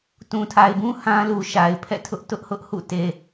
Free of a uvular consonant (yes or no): yes